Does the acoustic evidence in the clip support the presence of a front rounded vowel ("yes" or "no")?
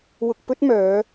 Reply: yes